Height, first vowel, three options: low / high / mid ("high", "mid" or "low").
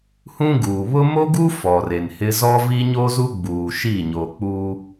high